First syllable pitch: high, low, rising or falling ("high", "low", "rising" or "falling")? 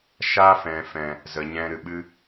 high